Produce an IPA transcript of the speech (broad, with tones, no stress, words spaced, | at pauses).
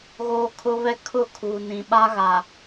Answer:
ɣoː˦kʰʊ˦βɛ˦ kʰʊ˦˨kʰuː˨ nĩ˨ɓa˦ɣa˨